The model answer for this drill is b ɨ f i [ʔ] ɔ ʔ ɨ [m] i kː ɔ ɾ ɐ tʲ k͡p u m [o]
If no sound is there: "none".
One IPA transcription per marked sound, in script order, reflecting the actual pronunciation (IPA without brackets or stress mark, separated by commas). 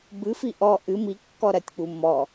ʔ, m, ɔ